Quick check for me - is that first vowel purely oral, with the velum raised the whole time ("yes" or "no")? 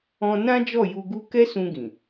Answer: no